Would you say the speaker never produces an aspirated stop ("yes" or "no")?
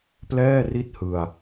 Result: yes